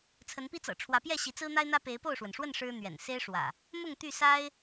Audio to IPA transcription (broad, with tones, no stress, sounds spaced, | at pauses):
t͡sʰ ə˨˦ n p i˦ t͡s ɤ̰˨˩ ʈ͡ʂʰ w ä˨˦ p j ɛ˥˨ ɕ i˨˦ t͡s ɹ̩˦ n̪ a˦ ɪ̯ n̪ ä˦ p e˨˦ ɪ̯ p o˥˨ ʊ̯ ʂ w ə˩ n ʂ w ə˥˨ n ʂ ɻ̩˦ n̪ ɥ ɛ̰˨˩ n s e˦ ɪ̯ ʂ w ä̰˨˩ | m ʊ˥˨ ŋ t̪ y˥˨ s a˦ ɪ̯